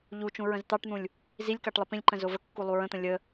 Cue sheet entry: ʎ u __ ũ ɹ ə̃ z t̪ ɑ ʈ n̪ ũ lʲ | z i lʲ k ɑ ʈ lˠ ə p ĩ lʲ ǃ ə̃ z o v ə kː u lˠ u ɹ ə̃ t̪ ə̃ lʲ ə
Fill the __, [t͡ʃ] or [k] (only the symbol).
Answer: t͡ʃ